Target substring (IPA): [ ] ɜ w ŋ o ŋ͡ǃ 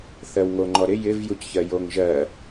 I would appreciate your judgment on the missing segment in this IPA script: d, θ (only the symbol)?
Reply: θ